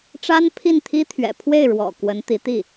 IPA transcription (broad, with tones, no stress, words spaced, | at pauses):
ʈ͡ʂa˥npʰi˥˩nt̪ʰi˥ t̪ʰɥɛ̰˨˩pʰwe˥˩ɪ̯ ɻwɔ̰˨˩ kwə˧˥nt̪i˧˥t̪i˥˩